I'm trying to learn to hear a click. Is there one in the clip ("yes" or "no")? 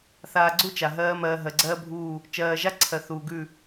yes